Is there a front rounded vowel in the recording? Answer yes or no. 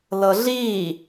no